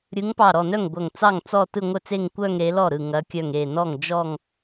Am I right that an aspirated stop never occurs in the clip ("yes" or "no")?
yes